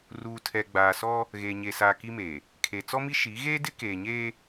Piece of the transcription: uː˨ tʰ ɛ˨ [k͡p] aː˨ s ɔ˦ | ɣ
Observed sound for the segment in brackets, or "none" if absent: ɡ͡b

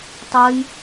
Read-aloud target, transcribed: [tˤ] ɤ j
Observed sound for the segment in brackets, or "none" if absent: tˤ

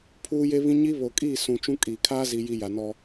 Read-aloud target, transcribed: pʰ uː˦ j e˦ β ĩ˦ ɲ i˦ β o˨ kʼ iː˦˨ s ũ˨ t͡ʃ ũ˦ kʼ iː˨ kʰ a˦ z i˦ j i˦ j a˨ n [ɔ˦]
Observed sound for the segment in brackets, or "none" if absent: ɔ˦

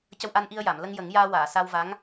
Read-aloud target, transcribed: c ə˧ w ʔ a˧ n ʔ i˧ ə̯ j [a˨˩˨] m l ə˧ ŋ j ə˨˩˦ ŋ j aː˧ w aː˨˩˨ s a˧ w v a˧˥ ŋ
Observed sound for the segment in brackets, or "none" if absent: a˨˩˨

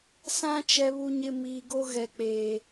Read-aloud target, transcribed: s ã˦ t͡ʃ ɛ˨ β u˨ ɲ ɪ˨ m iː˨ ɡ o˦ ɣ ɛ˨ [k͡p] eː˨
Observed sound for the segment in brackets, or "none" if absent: k͡p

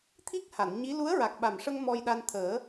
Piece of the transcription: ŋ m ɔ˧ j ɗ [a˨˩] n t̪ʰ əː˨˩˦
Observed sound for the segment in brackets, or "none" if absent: a˧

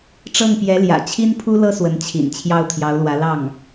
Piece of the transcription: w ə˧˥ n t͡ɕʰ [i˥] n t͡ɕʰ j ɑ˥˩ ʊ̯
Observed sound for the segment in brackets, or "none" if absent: ḭ˨˩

